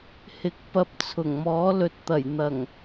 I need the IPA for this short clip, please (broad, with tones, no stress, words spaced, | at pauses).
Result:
hɪ˨˥k̚pɐ˧p̚ t͡sʰʊ˨˩ŋmɔː˨˥ lɵ˨˥t̚t̪ɐ˨˩j n̪ɐ˨˩ŋ